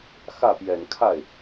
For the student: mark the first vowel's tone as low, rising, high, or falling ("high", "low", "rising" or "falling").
falling